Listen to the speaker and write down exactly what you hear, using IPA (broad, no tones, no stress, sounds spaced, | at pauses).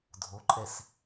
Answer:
dʱ o ǃʼ ɛ s